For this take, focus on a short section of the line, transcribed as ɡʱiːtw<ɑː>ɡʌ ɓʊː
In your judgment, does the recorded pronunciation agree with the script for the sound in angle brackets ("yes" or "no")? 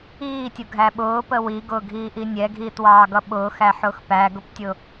yes